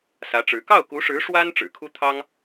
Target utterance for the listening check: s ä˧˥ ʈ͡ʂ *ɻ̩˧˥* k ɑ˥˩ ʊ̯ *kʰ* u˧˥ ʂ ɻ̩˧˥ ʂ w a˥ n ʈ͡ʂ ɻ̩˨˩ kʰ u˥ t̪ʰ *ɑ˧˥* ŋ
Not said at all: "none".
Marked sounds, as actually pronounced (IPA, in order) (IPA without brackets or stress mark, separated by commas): ɻ̩˧˥, k, ɑ˥